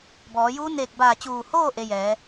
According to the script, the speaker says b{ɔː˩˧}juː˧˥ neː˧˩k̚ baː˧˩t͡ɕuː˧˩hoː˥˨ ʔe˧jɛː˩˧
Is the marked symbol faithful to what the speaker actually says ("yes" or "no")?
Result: yes